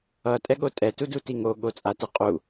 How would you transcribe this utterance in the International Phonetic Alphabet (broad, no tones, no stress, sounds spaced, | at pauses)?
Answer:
ʌ tʼ ɛ ɠ o tʼ ɛ t u d u t i ŋ o ɠ o t͡sʼ a t ɯ qʼ u